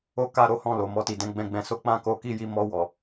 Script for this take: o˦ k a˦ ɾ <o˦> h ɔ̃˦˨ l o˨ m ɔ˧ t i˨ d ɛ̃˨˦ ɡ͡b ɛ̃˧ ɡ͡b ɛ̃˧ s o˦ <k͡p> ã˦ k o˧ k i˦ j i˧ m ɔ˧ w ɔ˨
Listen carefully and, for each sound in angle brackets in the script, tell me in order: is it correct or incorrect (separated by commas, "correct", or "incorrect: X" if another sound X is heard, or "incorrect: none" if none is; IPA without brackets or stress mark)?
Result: correct, correct